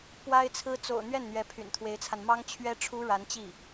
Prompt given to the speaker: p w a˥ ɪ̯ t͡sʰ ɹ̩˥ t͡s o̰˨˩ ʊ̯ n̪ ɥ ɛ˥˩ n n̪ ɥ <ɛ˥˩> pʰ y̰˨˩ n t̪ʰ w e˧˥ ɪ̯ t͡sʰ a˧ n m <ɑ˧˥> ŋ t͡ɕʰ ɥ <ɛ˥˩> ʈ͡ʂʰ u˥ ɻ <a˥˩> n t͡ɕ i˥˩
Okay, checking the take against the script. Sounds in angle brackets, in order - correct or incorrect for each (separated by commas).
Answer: incorrect, incorrect, incorrect, incorrect